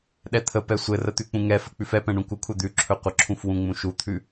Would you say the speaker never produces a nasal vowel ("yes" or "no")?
no